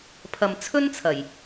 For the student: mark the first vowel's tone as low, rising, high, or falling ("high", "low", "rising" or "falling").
low